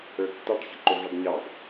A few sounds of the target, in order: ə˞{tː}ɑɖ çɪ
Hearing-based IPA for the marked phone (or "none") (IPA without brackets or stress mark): tː